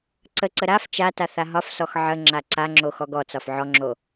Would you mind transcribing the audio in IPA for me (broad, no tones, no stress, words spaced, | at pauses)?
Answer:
ǀəǀə ɾaf t͡ʃata θaɦɒfsɔx ʕə ŋ͡ǁaǀaŋ͡ǁo xɔɡɔt͡sɒf ʕɔŋ͡ǁo